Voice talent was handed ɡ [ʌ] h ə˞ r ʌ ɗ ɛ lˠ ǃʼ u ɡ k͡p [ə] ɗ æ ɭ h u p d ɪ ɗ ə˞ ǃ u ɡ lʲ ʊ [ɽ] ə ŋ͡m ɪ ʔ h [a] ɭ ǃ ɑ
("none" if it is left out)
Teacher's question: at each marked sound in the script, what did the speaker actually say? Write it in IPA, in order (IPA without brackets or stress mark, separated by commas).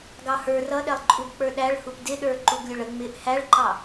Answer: ɑ, ə˞, ɭ, æ